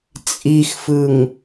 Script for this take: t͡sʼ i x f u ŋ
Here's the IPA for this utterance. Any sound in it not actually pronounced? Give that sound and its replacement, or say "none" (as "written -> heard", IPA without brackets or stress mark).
u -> ɯ